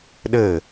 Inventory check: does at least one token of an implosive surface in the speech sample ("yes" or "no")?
yes